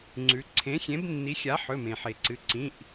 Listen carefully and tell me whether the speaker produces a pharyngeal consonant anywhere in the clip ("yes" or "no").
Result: yes